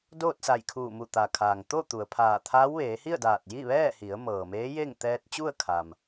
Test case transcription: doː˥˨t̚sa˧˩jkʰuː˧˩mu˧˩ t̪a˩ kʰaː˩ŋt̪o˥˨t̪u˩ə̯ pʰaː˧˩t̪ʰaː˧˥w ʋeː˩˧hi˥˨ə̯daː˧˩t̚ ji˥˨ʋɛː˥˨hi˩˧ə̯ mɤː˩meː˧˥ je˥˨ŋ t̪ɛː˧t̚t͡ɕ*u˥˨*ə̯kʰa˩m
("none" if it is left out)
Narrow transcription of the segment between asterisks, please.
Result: u˥˨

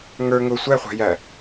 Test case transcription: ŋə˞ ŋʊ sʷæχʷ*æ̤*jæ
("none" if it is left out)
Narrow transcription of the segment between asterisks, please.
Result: æ̤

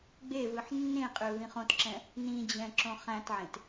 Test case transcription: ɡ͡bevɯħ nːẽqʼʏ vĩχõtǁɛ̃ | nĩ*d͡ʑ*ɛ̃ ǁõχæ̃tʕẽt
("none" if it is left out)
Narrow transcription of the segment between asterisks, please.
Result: d͡ʑ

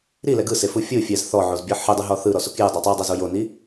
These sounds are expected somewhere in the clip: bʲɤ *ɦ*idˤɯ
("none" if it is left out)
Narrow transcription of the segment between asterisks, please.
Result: ħ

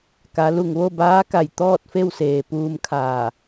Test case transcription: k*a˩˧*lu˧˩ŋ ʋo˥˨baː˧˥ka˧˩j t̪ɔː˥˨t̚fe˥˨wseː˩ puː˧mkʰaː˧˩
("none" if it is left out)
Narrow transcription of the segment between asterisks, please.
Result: a˩˧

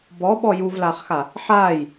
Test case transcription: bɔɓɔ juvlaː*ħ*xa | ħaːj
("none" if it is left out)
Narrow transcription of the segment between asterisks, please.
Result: χ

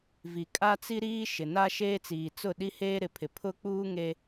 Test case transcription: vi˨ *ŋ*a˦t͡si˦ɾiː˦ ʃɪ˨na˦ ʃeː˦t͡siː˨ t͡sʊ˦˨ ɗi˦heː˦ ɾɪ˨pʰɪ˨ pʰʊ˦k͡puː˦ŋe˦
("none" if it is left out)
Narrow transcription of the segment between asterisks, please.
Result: kʼ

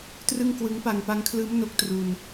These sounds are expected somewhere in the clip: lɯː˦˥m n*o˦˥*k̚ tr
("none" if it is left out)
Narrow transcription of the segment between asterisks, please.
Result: o˦˥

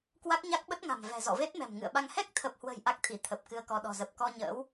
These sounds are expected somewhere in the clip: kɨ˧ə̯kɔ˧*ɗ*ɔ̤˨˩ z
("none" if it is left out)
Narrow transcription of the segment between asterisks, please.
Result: ɗ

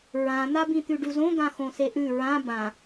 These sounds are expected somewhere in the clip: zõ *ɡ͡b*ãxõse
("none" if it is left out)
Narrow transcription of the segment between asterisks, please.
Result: ɡ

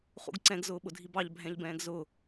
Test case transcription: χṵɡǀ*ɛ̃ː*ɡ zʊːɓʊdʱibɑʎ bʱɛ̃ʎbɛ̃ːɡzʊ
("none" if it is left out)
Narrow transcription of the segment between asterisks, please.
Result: ɛ̃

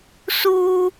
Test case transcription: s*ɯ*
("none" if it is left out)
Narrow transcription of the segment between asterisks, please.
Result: u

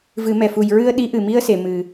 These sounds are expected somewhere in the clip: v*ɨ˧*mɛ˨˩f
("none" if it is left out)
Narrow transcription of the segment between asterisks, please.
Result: ɨ˨˩˦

